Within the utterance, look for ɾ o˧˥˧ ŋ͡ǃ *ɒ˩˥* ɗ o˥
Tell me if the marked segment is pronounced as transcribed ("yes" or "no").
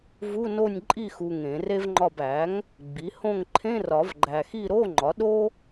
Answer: yes